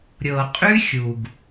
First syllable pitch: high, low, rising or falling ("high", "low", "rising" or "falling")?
low